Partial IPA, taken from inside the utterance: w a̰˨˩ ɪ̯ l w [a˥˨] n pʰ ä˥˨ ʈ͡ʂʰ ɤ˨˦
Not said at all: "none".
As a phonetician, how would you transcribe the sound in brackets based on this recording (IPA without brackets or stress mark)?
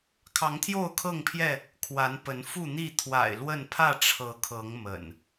ə˥˨